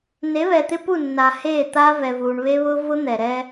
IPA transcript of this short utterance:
ne˨˦βɛ˨t̪ɪ˦pu˦˨ nːa˨heː˦˨t̪aː˦ vɛ˨vuː˨ɳ βe˦βʊː˦ vʊ˦ n̪ɛ˨ɾɛː˦

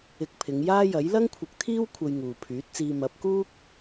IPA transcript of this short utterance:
ɪ˧k̚pʰɪ˨˧ŋ jaː˥jɐ˨˥j lɐ˥ŋkʷʰɪ˨˥k̚t̪ʰiː˥w kʷʰɐ˧jŋuː˨pʰyː˨˥t̚t͡siː˧ mɐ˨˥p̚kuː˥k̚

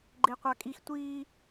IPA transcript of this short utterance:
ɡ͡ǃeqʷakʼix tʷi

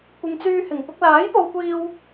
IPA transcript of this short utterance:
kʷɪ˨ŋt͡syː˧hɪ˨˩ŋ pʊ˧k̚laː˨˥j po˨wkʷiː˧w

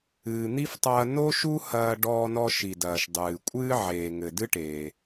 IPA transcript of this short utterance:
ɨː˩n̪i˥ftˤɐː˧ no˥ʃu˥ hɐː˧ ɖɔː˧nɔ˧ʃi˩ dɐː˩ʃdˤɨː˩kʷʼɨː˥ ʕeː˩ŋɘ˩ dɨ˥ʈeː˩

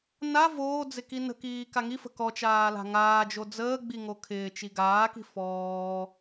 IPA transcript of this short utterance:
na voːd͡zɪ kinə̤kiː kaŋifə̤ kɔt͡ʃaː la̤ŋaːd͡ʒo d͡zəːɡ͡bi ŋokʰɪːt͡ʃi ɡaːki̤ fɔː

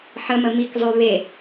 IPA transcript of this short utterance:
ħəmə mikzˤʉ βe

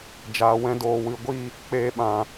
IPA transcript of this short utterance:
d͡ʒaː˨wɛ̃˧ doː˨wɨ˨ ɡʷi˦˨ | k͡peː˧ɓã˨

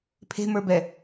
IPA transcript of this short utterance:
pʰe̤mə˞bɛ

